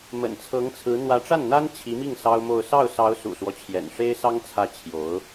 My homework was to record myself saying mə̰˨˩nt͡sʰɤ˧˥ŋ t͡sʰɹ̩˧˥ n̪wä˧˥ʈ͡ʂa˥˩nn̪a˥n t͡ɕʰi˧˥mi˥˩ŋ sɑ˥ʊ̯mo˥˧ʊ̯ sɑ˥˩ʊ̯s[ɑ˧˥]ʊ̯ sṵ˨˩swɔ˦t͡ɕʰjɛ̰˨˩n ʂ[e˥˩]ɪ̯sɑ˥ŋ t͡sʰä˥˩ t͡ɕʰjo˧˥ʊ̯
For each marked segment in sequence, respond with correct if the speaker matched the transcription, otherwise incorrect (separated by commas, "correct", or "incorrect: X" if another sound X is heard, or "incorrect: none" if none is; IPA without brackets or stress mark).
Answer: correct, incorrect: e˥